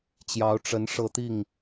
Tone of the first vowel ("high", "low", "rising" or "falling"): rising